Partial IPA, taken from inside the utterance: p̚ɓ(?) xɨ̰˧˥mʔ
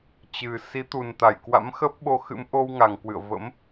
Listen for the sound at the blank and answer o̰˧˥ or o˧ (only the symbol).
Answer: o˧